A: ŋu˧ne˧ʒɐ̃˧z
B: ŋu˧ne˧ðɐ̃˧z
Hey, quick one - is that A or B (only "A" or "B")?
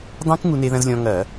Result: B